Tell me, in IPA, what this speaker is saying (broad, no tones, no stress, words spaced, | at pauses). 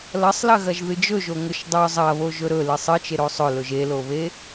lɐsˤlɐɣɐʒ ðɨd͡ʒɵʒo ŋɵʃdˤɵ zˤɐβo ʒɵɾɵlɨ sˤɨt͡ʃe ɾosˤɵlɵʒ eloβe